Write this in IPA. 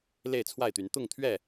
l e˥˨ ɪ̯ t͡sʰ w a˥˨ ɪ̯ t̪ y˨˦ n t̪ ʊ˥˨ ŋ t̪ʰ ɥ ɛ˥˨

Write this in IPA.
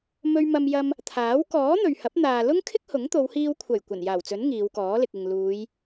m ɵ˧ ɥ m ɐ˧ m j ɐ˧ m | t̪ʰ aː˨˥ w k ɔː˨˥ n̪ ɵ˨ ɥ h ɐ˨˥ p̚ n̪ aː˨ l ʊ˥ ŋ kʰ ɪ˥ k̚ h ʊ˨˥ ŋ t̪ o˨˧ w h iː˧ w kʷʰ ɐ˨˩ j kʷ ɐ˨˩ n j aː˨˩ w t͡s ɵ˨˥ n ŋ iː˨˧ w k ɔː˨˥ l ɪ˨ k̚ ɪ˨ ŋ l uː˨˧ j

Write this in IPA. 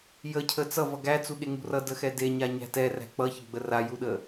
j ə cʰ ə t͡s ʌ v ʌ ɡ æ t͡s u ɠ e ŋ ṳ r ʌ d ə x ɛ d e ɲ a ɲ æ̤ t ɛ r æ̤ k͡p ʌ ç ə ɡ͡b ə r a j u ɗ ə

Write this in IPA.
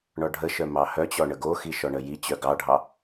ɳ ɔ ɖʱ ə ʃ œ m ɑ h œ t͡ɕ ɔ ɳ ə ɡ o x i ʃ ɔ ɳ ə j i t͡ɕ œ ɡ ɑ ɖʱ ɑ

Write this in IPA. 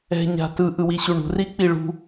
ɛ̤ ɲ a̤ t ɯ ʔ ɯ w i ɕ u ɳ ṳ r i k͡p i ɭ ṳ

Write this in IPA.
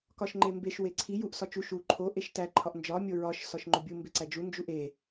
k ɒ ʃ ŋ͡ǃ e m b e ʃ w e ǀʰ i j u ʔ s ɒ t͡ʃ u ʃ u ǃʰ o ʔ e ʃ t æ ǃʰ ɒ ʔ n d͡ʒ ɒ mʲ o ɹ ɒ ʃ s ɒ ʃ ŋ͡ǃ o bʲ u m b e ǀ æ d͡ʒ u n d͡ʒ u ʔ e

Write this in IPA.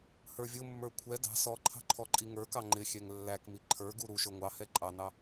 h ə˞ vʲ ʊ mː ə˞ kʷʰ ɛ d ɑ̤ s ɔ ǃʰ ɑ̤ ǃʰ ɔ ǃʼ i ŋ ə˞ k ɑ ŋ͡ǃ ɪ xʲ ɛ ŋ lː æ k m i ǃʰ ə˞ ɡ u ɾ u ʃ ə˞ ŋʷ ɑ h ɛ ǃʼ ɑ n ɑ

